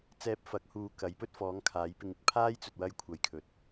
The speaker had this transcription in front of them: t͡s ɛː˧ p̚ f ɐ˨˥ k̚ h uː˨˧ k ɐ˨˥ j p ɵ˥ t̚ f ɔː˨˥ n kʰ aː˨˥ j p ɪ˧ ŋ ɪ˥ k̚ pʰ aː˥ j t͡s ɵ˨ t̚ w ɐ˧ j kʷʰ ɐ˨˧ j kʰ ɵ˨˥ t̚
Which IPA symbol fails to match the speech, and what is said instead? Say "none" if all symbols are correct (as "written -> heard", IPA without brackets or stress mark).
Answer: n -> ŋ